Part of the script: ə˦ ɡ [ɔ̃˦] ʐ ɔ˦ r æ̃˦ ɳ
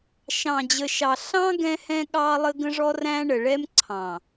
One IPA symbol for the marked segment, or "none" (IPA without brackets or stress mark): ə̃˦